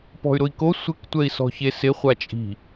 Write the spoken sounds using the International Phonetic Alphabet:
pɔ̤y̯ɾʊi̯ko sʷɪk tʷɛi̯sɔ̤çesɪ χʷat͡ʃʼi̤

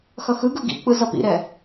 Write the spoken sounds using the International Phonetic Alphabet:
xʌxɯɡɯ ɡḭk͡pɯ zʌpḭɾɛ

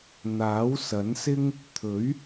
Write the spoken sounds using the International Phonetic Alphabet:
n̪aː˨˥wsɐ˨˥nsɪ˥ŋ | t̪ʰɵ˨˥ɥ

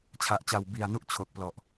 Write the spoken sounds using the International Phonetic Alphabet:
t͡ɕʰa˨˩ʔt͡ɕa˨˩wbi˨˩a̯ nu˥˩ʔt͡ɕʰo˨˩k̚plɔ˨˩ʔ

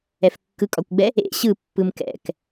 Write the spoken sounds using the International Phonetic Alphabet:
ɛfkːɯkʼɒkʷɡ͡bɛ | ḛ ɕɯpːɯm kɛ̰k

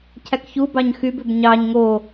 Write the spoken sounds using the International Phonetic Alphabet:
cʰækçu bɑɲxyb øbɲɑɲ ŋo

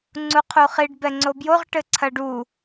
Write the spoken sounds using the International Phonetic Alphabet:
ŋ͡ǀuqʰuχiɖ bɛŋ͡ǀobjoʁ ʈɘǀʰɐɖu

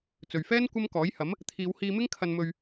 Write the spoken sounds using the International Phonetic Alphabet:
t͡sɵ˨ɥfɛː˥n kʷɐ˥mkɔː˨˥jhɐ˨˥m | t̪ʰiː˨˧whiː˧mɪ˥ŋ kʰɐ˧nmɵ˧ɥ

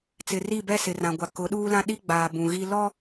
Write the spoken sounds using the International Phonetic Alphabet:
t͡sɪ˨ri˦˨bɛ˦˨ sɪ˨rã˨ɡʷa˨ kʊ˨˦ɗuː˦lã˦ ɗi˦ɡ͡baː˨ bũ˨ɣi˦ lɔ˦

